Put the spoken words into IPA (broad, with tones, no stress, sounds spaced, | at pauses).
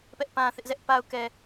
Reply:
p ɛ˦ ʔ p ã˦ θ ɪ˦ ʔ z ɛ˦ ʔ p a˦ ʊ̯ k ɛ˦